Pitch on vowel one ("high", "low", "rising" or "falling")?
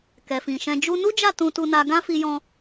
low